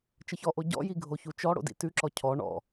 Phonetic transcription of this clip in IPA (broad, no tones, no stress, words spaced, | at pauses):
t͡ʃəçɔʔo ɟɔ̰ji ɡʱoçut͡ʃɔɽo̰ dḭtʉǁɔ cʰɔ ɳɔ̰